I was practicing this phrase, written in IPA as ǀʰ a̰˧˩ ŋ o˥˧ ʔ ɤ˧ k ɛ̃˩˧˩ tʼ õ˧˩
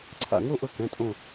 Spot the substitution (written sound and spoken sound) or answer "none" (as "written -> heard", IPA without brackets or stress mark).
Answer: none